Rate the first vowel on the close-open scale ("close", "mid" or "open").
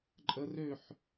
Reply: mid